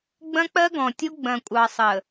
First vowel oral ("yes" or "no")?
no